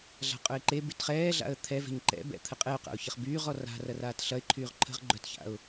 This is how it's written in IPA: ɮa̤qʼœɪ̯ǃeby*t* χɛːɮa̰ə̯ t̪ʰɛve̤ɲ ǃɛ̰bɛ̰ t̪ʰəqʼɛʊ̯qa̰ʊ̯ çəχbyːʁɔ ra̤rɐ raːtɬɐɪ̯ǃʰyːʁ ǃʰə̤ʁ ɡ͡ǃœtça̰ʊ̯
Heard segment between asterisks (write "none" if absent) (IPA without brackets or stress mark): t